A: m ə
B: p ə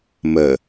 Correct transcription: A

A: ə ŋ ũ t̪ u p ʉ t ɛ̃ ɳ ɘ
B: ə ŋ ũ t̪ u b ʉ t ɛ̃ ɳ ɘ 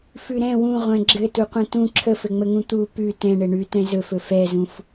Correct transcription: A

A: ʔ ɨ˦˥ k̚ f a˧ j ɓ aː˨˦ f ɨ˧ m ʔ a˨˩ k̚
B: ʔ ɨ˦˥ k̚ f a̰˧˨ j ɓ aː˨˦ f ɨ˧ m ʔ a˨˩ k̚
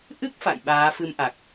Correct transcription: B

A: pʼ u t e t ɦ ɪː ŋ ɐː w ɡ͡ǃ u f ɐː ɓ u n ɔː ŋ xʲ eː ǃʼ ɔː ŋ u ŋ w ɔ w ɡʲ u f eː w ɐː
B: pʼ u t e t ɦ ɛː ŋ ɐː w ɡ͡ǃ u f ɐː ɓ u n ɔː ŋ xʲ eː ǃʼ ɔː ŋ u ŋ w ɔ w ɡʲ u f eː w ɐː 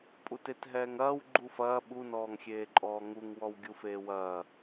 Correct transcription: B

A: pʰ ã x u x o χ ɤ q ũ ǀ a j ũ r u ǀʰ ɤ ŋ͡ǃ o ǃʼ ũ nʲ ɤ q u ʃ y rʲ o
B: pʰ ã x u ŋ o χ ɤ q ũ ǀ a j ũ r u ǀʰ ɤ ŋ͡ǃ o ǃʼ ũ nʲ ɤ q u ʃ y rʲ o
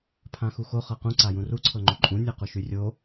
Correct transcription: A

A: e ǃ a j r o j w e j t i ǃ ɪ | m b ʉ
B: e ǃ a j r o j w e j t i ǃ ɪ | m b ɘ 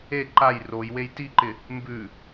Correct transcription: A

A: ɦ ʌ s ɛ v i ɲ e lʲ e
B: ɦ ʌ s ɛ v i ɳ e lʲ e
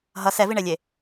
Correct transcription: B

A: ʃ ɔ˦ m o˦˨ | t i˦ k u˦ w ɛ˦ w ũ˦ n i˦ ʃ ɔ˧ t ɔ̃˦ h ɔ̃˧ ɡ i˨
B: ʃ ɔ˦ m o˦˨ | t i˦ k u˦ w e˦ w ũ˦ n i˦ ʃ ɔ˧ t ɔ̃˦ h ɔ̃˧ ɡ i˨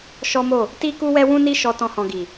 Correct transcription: A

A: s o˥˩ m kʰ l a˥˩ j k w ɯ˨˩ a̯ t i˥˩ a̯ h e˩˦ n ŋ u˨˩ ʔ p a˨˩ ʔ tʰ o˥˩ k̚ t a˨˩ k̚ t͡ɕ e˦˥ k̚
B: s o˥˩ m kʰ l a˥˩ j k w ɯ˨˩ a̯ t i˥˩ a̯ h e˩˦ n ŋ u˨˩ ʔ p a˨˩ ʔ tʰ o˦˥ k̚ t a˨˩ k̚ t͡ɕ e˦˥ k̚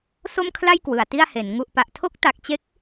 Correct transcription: B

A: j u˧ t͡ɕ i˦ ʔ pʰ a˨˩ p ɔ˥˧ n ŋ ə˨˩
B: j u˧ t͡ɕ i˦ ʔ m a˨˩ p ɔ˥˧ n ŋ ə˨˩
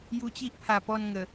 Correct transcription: A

